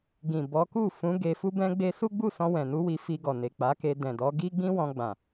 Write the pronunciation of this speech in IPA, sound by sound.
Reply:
ɡ ĩ˨ b ɔ˨˦ k u˦˨ f ũ˨˦ ɡ e˧ f u˦ b ɛ̃˦ ɡ͡b e˦ s u˦ ɡ͡b u˦˨ s ɔ̃˧ w ɛ̃˨ n u˨˦ w i˧ f i˧ ɡ ɔ˨ n e˨ k͡p a˨˦ k e˧ d ɛ̃˨ d ɔ˨˦ ɡ i˦ ɡ͡b ĩ˦ w ɔ̃˧ ɡ͡b ã˨

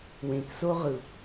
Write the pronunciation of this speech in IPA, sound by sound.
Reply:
w ẽ k s o ʁ ɯ

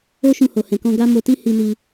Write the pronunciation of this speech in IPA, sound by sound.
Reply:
o˦ ʃ ũ˧ h o˨ h ɛ̃˨ k ɔ̃˧ ɡ a˦ m o˧ t i˦ h i˧ n i˧

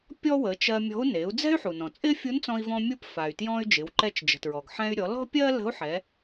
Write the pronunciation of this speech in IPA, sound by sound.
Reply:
pʲ ɔ˥ w ə˩˧ t͡ʃ ɜ˧ mʲ ɔ̤˧˥ u̯ n e˩˧ u̯ d͡z ɛ̤˥ y̯ ħ u˩ n ɔ̃˩ t͡sʼ ɪ˥ fʲ u˧˥ n t͡s ɔ̃˧ i̯ v ɔ̃˧ mʲ u˧˥ p f a˩ y̯ t j ɔ̃˧ y̯ d͡ʒ ɪ˩˧ w ǃ ɛ˧ t͡ʃ d͡ʒ ə̤˩ t ɹ ɔ˩ ɡ ħ ɛ̃˧ y̯ ɾʲ ɔ˩˧ l ɔ̤˥ pʲ ɜ˥ l ə̤˧˥ u̯ ħ ɛ˩˧

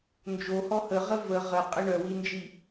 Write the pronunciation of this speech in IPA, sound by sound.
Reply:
n d͡ʒ o h ɔ h ə ʁ ə v ə ʁ ə qʼ ə ɳ œ w i n d͡ʒ i

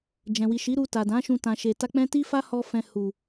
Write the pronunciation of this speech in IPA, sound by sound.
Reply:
d͡ʒ ɛ̃˨ w i˨ ʃ i˨˦ ɾ u˧ t a˨ d ã˨˦ ʃ ũ˧ t ã˨ ʃ e˨ t a˧ k͡p ɛ̃˦ t i˦ f a˦ h ɔ˧ f ɛ̃˨ h u˨

